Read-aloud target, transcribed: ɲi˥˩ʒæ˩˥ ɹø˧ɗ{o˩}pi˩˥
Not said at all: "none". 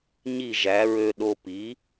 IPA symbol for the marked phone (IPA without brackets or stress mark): o˧